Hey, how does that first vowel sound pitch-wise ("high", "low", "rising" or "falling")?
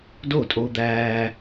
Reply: falling